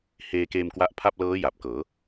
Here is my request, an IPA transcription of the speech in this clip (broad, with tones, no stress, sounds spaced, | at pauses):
h eː˧ k eː˧ m k w a˦˥ ʔ pʰ a˥˩ p̚ l ɤː˦˥ j a˨˩ p̚ k ɤː˩˦